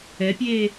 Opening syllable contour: rising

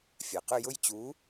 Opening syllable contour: low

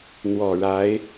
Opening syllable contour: low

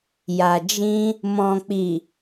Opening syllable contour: low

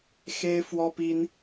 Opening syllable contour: high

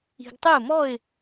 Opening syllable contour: low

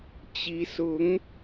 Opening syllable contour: rising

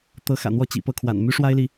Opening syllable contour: rising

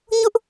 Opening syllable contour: high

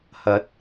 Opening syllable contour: rising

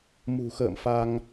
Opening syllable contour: low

